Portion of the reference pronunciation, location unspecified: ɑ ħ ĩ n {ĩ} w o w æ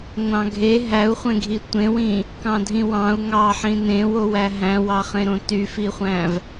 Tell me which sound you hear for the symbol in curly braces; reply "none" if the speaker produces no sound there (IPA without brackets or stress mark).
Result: ẽ